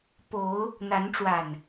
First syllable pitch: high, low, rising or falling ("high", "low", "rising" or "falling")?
rising